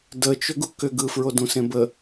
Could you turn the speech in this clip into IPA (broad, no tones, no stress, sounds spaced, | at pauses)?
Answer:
d ə t͡ʃ ʏ ɡ u k ʏ ɡ ɯ f ɹ o d ũ s ẽ b ə